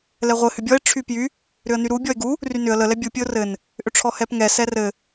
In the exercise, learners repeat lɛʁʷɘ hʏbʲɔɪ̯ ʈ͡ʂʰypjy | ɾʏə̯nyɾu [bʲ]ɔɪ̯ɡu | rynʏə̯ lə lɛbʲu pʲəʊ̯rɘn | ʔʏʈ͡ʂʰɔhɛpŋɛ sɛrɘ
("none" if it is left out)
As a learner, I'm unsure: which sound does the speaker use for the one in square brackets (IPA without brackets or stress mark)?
bʲ